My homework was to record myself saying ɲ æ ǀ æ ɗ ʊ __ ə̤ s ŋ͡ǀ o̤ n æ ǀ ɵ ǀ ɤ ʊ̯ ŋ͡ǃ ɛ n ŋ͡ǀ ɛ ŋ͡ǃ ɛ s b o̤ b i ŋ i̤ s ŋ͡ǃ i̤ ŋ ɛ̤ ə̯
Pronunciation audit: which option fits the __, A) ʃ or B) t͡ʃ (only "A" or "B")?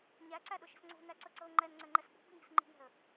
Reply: A